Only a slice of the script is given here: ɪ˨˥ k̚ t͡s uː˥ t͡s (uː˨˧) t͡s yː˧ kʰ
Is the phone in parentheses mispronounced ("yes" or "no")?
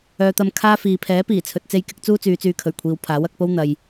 yes